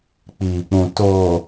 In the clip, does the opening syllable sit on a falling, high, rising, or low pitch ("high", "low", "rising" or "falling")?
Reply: low